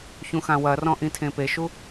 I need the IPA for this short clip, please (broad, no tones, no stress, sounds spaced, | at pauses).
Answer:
ç ũ x ã w ɐ r ɔ̃ ʔ ĩ tʰ ẽ p e ʃ u